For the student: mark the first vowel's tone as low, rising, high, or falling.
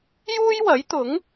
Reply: high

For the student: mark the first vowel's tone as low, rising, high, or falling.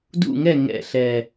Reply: falling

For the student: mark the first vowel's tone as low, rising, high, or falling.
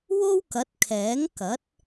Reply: high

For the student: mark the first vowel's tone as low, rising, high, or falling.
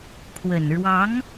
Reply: low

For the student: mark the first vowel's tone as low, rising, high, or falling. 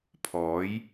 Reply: rising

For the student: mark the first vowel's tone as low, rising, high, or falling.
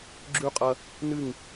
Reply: falling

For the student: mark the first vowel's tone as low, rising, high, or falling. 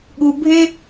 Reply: low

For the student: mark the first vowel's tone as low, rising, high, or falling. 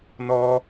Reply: high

